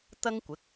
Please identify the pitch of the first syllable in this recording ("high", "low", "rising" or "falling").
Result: high